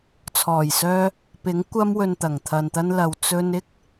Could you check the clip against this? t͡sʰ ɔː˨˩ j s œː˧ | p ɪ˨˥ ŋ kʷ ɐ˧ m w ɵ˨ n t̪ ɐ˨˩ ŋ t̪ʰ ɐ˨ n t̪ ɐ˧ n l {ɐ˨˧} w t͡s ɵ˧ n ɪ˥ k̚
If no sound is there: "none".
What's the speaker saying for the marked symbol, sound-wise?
ɐ˨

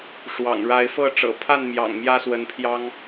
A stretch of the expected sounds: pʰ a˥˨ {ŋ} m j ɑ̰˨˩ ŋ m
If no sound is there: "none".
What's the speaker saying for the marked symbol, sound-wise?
n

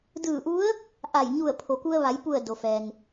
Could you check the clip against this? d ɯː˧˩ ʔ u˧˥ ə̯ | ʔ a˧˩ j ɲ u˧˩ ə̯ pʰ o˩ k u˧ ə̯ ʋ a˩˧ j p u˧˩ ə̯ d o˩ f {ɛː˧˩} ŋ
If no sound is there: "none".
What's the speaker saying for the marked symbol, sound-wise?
ɛː˩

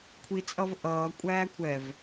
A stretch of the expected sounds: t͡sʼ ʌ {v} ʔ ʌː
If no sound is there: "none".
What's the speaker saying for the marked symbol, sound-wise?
v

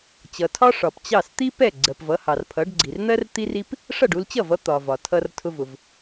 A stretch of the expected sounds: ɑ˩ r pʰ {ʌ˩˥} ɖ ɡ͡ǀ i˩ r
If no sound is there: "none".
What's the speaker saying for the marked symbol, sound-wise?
ʌ˩˥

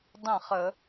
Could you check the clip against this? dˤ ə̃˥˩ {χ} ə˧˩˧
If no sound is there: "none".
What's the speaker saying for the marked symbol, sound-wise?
χ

